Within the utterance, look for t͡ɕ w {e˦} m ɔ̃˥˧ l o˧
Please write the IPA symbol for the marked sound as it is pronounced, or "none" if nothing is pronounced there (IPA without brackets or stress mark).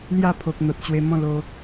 e˧